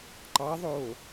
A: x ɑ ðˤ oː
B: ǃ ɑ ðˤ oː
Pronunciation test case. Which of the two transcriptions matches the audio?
B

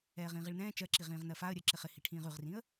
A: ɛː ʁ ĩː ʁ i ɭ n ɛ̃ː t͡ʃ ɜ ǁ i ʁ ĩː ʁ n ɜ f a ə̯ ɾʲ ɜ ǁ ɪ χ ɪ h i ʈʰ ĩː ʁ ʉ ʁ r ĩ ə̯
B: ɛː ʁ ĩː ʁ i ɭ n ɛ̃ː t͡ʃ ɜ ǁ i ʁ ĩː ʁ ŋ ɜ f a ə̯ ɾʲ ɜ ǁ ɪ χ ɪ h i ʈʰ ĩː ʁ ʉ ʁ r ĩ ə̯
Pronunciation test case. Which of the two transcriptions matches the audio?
A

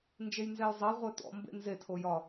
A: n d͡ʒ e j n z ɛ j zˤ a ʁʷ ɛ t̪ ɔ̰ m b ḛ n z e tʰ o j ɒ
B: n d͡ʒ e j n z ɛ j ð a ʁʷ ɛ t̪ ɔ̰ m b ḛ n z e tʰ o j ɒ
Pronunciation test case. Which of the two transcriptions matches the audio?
A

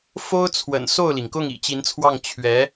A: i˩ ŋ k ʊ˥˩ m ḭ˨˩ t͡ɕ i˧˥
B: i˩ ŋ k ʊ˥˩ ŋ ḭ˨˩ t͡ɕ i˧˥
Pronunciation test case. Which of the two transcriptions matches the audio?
B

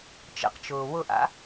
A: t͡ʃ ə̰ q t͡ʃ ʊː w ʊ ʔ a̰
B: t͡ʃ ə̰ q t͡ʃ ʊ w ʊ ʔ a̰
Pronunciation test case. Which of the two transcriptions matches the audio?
A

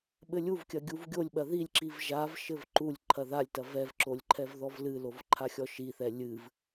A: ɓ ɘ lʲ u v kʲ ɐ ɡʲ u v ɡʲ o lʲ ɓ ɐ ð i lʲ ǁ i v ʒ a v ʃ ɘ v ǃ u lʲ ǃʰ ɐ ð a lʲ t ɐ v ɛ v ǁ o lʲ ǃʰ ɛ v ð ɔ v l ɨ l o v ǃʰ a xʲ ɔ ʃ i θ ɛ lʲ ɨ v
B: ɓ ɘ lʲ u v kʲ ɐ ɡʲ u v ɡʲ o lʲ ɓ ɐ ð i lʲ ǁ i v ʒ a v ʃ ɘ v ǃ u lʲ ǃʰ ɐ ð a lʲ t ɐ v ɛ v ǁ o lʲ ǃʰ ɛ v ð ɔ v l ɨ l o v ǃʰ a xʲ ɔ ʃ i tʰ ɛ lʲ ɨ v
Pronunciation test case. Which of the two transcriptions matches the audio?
A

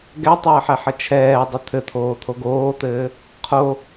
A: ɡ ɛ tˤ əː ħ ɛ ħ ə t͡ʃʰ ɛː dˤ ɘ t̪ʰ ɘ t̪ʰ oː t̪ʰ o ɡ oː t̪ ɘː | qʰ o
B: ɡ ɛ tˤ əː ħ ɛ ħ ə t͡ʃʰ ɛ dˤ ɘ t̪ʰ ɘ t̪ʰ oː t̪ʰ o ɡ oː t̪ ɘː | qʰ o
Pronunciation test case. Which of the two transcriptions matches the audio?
A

